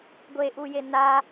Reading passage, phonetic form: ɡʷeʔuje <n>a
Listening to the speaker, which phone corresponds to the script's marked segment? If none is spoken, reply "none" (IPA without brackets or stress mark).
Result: n